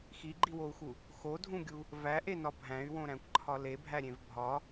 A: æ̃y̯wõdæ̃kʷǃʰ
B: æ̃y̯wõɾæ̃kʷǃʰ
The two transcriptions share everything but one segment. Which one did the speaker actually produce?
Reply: B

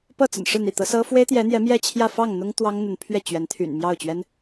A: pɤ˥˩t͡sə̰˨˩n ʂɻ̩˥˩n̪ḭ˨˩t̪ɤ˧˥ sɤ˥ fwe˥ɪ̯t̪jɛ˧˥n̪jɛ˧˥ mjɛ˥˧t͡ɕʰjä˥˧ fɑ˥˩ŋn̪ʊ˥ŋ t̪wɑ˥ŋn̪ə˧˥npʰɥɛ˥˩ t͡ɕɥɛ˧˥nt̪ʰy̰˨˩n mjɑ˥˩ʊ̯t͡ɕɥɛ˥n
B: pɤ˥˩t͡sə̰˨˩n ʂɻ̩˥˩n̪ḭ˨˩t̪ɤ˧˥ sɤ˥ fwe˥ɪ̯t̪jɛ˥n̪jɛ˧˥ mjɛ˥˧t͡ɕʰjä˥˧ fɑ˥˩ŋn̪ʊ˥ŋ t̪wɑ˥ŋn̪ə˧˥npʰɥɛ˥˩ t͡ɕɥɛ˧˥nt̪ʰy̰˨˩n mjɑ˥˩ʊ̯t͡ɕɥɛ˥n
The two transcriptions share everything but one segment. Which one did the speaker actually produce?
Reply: A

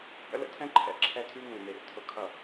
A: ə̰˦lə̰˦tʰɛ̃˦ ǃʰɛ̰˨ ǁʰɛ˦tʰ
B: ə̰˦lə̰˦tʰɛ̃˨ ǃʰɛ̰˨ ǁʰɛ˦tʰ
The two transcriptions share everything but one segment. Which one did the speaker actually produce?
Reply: A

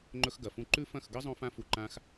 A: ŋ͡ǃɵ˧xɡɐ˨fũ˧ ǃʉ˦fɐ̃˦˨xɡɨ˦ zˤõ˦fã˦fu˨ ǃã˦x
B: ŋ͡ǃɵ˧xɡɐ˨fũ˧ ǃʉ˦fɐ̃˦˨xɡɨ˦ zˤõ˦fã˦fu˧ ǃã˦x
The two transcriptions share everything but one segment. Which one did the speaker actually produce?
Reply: B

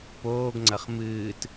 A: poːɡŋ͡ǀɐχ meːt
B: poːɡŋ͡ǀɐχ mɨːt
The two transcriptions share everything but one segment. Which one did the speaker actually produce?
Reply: B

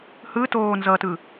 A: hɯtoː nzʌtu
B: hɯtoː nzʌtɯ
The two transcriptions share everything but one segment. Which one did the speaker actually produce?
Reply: B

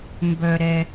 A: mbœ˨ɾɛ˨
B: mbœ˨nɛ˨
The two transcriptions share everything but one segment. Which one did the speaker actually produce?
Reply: A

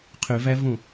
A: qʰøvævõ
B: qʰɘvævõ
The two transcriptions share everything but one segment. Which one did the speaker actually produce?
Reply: A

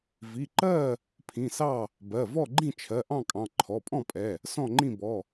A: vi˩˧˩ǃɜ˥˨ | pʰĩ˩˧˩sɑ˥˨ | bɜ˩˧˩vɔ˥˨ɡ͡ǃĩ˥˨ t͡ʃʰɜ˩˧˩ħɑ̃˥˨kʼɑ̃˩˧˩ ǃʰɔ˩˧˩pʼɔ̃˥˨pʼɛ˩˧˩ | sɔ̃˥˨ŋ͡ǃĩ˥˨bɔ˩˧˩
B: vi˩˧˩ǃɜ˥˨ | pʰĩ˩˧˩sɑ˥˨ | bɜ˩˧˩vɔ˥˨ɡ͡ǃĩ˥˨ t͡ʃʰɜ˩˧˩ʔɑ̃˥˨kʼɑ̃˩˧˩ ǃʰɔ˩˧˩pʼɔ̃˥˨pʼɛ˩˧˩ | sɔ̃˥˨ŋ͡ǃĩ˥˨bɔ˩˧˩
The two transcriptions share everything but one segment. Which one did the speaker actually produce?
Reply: B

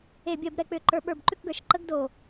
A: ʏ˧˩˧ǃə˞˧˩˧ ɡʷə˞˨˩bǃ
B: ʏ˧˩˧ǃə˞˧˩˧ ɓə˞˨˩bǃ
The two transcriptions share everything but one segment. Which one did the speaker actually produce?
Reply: B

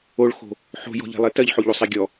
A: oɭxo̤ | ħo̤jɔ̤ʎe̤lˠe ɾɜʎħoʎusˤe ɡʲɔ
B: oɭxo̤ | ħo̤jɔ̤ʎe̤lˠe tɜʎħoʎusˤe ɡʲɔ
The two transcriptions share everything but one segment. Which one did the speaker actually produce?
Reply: B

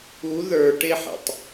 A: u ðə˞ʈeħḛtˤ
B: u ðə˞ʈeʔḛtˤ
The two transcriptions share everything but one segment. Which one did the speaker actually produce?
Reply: A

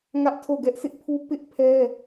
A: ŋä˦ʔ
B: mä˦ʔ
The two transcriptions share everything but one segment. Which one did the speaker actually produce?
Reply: A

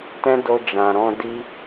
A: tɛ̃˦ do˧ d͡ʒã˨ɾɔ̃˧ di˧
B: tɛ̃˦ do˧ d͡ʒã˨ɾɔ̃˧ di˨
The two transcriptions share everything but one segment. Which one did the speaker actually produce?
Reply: A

